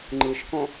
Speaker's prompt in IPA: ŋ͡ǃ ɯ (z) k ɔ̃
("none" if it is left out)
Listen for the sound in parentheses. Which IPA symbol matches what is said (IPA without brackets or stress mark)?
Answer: ʃ